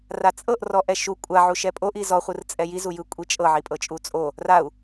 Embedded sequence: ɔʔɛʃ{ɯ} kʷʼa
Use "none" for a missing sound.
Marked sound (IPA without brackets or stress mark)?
u